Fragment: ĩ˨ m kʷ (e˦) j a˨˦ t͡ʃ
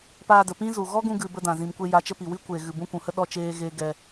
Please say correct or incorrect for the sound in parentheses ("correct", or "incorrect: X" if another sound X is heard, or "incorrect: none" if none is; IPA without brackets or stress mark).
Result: incorrect: e˧